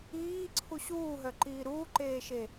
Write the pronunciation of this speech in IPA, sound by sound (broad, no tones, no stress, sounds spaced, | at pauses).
iː ǀʰ u ɕ uː ɦ œ ǃ iː ɾ uː ǃ eː ʃ e